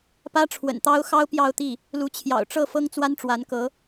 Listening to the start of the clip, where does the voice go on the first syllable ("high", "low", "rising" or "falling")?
high